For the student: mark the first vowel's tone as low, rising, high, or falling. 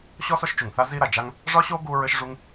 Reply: high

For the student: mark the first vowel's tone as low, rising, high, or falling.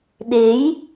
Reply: rising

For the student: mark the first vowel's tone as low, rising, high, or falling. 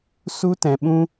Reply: high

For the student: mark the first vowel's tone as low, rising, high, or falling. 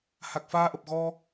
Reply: low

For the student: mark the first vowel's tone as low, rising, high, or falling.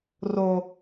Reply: low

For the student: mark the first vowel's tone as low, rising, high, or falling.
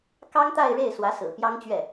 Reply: high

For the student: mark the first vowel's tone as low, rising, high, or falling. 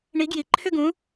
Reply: rising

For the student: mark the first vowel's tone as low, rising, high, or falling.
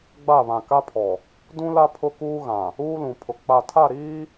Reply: falling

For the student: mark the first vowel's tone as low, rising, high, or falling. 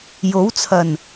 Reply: rising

